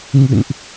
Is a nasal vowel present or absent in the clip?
absent